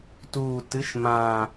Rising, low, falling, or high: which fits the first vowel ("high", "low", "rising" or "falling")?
low